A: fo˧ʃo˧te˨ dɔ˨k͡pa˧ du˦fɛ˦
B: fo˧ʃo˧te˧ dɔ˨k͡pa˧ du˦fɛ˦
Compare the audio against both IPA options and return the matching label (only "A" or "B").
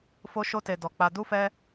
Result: A